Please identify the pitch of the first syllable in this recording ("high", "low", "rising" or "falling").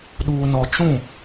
low